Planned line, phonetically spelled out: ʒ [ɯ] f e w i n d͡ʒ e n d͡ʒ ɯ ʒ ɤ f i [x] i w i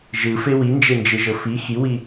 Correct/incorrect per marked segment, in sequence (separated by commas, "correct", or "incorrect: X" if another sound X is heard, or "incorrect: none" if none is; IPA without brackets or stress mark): correct, correct